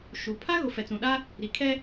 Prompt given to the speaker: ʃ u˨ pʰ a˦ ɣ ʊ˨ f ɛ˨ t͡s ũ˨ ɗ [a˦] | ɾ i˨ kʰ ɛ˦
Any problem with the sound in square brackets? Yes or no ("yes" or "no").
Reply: no